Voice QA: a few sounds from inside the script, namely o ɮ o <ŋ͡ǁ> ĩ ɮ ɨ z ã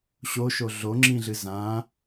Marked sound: correct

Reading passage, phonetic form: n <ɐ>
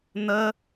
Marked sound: incorrect: ə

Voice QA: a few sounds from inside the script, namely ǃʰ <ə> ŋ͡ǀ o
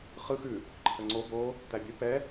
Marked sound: correct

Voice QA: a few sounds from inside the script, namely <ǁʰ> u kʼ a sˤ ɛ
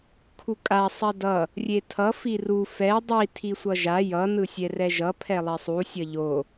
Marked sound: incorrect: kʰ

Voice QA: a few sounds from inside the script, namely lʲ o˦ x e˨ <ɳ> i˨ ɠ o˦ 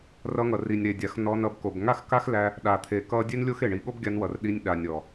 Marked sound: correct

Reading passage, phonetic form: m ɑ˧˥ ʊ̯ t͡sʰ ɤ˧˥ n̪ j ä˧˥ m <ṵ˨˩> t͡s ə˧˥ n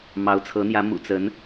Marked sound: correct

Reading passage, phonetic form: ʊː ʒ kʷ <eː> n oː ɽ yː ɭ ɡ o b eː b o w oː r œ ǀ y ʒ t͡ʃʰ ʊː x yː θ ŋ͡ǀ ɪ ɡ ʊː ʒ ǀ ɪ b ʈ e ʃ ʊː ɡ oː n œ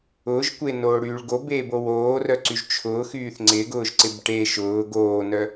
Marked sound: incorrect: e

